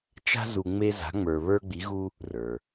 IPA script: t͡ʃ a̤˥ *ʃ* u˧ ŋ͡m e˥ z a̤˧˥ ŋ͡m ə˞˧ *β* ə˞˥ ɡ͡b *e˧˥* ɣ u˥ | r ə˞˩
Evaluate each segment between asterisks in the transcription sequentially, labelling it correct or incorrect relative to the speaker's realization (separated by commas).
incorrect, correct, incorrect